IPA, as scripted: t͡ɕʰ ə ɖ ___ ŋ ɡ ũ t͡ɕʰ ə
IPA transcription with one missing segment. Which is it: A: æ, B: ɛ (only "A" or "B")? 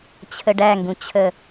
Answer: A